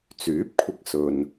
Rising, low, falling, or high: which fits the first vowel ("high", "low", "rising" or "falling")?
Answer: rising